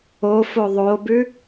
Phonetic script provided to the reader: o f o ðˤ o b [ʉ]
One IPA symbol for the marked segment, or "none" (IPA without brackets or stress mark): ʉ